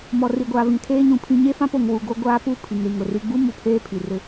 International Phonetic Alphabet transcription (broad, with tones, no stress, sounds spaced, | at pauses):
m ɔ˨ r i˨ ɡʷ aː˨ v ĩ˨ tʰ eː˦ ɲ ũ˨ pʰ ĩ˦ ɲ e˦ f ã˦ p o˨ ŋ w u˨ ɡ o˦ ɡʷ aː˦ p u˦˨ pʰ i˨ ŋ ɾ i˨ ŋ ʊ˨ r i˦ ɡ͡b u˦ m u˨ pʰ eː˦ pʰ i˨ r ɪ˦